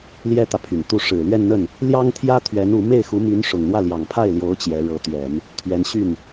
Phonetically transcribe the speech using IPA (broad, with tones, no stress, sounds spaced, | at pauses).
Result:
l j ɛ˥ t̪ ä˨ pʰ y˨˩ n t̪ u˥˩ ʂ ɻ̩˨˩ l ɥ ɛ˥˧ n n̪ ə˥˩ n | l j ɑ˥ ŋ t̪ʰ j ä˥ t̪ʰ ɥ ɛ˧˥ n u˧˥ m e˥˩ ɪ̯ x u˧˥ m y˧˥ n ʂ ʊ˨˩ ŋ n̪ w ä˥˩ l j ɑ˨˩ ŋ pʰ a˥˩ ɪ̯ l j o˧˥ ʊ̯ t͡ɕ j ɛ˧˥ ɻ ɤ˧˥ t̪ ɥ ɛ˨˩˦ n | t̪ʰ ɥ ɛ˧˥ n ɕ y˥˩ n